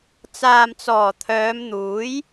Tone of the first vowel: low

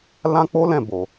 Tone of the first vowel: high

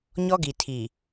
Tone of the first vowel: high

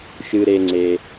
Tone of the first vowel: low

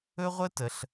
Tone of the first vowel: high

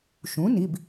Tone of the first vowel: rising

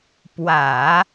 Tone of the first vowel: low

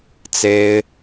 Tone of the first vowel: high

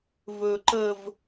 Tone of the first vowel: high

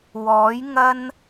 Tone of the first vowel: rising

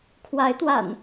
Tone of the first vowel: rising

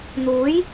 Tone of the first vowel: rising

